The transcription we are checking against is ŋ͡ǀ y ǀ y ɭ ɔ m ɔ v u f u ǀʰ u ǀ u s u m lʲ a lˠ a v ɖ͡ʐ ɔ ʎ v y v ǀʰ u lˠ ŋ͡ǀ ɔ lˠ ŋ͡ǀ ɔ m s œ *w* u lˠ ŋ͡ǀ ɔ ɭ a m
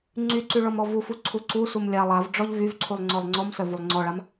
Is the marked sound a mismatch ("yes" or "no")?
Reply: yes